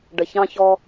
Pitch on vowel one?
low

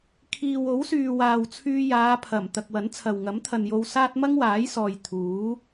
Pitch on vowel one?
low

